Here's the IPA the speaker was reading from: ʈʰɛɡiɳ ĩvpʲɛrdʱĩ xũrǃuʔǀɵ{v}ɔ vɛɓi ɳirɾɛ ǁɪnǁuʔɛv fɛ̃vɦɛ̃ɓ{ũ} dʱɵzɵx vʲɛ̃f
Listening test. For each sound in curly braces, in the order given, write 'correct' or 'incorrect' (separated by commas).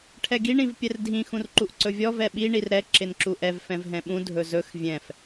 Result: incorrect, correct